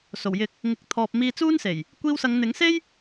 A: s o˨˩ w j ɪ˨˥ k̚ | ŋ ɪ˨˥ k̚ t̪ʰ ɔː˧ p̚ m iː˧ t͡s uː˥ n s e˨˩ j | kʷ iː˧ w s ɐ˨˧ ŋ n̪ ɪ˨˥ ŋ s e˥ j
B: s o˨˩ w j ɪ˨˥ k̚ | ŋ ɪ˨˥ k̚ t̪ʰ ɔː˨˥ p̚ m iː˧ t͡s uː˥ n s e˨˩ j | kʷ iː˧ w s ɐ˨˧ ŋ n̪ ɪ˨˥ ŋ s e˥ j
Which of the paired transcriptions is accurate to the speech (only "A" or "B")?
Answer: A